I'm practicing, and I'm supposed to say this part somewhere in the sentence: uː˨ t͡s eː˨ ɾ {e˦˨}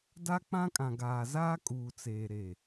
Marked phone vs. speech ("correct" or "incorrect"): correct